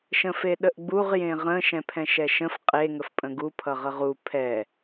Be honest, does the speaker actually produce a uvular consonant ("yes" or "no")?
yes